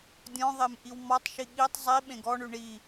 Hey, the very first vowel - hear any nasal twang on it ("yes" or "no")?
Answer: yes